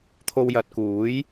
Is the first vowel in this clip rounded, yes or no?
yes